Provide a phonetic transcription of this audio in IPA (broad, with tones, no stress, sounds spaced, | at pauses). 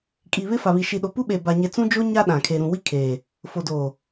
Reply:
kʼ i˨ β ɪ˦ f a˨ β i˨ ʃ i˨ ɗ o˨ p u˦ ɓ e˨ b a˨ ɲ e˨ t͡s ũ˦ d͡ʒ o˦ ɲ a˦ ɗ ã˨ kʰ e˨ ɾ ũ˨ w i˦ kʰ eː˨ | f o˨ d oː˨